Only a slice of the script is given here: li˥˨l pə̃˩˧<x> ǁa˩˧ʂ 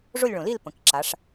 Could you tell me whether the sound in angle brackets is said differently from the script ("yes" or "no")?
yes